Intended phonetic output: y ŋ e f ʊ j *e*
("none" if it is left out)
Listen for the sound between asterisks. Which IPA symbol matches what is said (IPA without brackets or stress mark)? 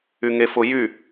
y